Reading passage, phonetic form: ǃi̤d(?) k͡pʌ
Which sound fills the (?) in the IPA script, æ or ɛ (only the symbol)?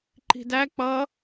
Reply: æ